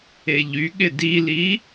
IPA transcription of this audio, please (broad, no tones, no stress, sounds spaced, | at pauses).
e ʎ y ɠ ɪ d i l i